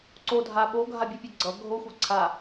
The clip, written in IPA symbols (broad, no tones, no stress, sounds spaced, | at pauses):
ǀ o dʱ a ɓ o ɡʱ a bʲ u pʲ ɛ ɡ͡ǀ ʌ ɡʱ o xʷ a ǀʰ a